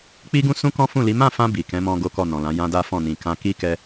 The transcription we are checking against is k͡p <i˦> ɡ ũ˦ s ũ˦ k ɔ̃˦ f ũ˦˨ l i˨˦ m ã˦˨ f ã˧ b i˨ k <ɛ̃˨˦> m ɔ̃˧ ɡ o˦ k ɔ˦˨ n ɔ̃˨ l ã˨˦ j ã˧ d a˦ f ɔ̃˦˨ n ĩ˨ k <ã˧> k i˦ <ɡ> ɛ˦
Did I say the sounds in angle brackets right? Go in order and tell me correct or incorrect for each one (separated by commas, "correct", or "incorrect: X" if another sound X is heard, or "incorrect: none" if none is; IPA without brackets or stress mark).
correct, correct, correct, incorrect: k